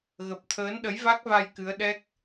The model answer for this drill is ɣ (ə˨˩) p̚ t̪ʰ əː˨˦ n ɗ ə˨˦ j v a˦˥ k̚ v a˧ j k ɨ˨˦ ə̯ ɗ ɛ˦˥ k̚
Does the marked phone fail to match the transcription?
no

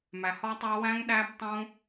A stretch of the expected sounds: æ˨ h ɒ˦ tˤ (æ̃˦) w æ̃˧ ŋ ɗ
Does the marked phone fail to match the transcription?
yes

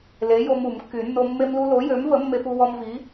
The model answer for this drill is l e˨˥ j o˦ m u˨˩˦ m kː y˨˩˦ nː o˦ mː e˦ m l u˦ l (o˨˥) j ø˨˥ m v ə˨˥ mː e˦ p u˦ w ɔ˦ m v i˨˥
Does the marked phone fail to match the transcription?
no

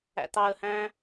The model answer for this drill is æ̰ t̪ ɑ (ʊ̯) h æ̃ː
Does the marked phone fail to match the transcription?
yes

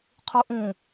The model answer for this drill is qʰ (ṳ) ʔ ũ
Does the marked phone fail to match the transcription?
yes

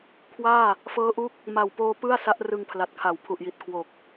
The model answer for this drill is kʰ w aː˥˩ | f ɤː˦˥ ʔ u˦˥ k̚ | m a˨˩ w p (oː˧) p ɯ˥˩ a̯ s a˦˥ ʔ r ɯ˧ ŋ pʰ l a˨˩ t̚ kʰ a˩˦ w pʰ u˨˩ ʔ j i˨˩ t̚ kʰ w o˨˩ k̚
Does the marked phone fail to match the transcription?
no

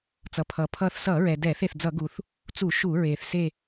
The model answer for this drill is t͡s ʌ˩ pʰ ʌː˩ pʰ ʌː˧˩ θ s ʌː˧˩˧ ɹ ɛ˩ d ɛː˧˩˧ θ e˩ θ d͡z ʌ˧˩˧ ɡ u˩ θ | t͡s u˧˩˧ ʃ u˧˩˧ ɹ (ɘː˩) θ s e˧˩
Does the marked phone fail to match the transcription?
yes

